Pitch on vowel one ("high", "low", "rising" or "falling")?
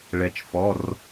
falling